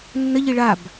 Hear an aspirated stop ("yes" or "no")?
no